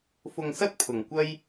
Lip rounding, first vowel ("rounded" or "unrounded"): rounded